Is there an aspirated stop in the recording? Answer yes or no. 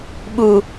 no